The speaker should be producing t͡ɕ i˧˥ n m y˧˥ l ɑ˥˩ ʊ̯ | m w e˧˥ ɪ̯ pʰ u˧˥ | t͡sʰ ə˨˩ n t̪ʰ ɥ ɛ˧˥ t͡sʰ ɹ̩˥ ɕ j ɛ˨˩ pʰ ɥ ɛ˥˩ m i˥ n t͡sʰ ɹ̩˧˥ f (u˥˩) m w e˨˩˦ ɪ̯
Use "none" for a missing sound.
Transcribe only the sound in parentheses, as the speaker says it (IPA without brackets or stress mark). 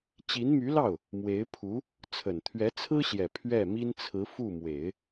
u˥˩